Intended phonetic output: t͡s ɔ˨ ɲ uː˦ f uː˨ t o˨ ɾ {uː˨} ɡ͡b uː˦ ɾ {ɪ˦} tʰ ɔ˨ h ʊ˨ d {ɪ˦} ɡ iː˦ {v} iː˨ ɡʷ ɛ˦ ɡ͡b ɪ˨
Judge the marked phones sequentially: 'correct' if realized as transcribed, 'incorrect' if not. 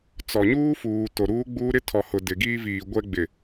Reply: incorrect: uː˦, correct, incorrect: ɪ˨, correct

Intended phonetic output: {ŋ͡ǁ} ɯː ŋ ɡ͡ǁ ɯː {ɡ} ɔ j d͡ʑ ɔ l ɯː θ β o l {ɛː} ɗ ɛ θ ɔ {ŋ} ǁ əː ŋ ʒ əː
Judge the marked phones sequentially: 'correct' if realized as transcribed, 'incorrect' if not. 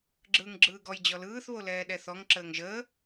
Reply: incorrect: ɡ͡ǁ, correct, correct, correct

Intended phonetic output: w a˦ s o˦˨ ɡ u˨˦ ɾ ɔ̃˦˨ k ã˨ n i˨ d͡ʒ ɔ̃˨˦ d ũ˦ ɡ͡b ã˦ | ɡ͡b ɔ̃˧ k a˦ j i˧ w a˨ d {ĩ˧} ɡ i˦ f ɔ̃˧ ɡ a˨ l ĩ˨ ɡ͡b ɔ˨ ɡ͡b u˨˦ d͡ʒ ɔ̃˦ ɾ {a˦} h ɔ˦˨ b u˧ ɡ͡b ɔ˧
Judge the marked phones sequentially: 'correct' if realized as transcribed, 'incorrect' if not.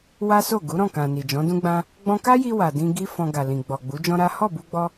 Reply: correct, correct

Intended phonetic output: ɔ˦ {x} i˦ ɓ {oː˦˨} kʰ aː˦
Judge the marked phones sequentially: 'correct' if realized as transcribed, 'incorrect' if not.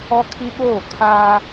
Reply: incorrect: kʰ, correct

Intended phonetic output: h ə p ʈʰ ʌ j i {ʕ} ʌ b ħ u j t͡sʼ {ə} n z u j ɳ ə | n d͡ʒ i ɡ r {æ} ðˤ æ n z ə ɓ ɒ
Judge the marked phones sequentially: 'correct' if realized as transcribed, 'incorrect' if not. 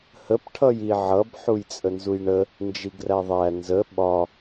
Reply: correct, correct, correct

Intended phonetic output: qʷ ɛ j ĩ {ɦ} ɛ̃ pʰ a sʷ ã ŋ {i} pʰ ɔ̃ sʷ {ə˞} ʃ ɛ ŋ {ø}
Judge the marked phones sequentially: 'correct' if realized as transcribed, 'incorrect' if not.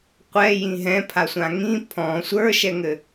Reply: correct, incorrect: ĩ, correct, incorrect: ɘ

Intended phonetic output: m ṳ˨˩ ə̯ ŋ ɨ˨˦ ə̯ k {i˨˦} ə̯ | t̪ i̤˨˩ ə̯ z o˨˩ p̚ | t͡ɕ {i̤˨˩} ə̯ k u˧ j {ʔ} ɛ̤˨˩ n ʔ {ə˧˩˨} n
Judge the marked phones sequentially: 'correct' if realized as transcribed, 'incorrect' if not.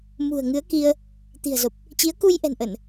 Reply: incorrect: i˧, incorrect: i˨˦, correct, correct

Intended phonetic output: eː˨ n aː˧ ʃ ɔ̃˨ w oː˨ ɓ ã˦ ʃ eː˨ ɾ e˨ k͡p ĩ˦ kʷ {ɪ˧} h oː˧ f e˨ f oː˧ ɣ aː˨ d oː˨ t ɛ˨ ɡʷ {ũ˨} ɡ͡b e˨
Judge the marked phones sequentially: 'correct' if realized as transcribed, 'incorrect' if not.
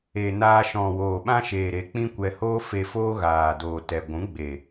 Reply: incorrect: ɛ˧, incorrect: ũ˨˦

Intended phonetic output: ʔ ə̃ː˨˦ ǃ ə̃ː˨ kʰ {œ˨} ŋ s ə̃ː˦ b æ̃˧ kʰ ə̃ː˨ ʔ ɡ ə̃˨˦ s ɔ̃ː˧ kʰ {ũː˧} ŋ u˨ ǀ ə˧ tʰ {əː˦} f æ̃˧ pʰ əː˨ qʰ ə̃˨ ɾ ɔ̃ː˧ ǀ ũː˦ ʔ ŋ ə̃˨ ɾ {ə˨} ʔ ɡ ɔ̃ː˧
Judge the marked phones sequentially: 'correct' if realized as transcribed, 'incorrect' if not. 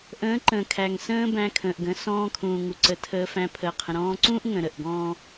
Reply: incorrect: æ˨, incorrect: ũː˨, incorrect: əː˧, correct

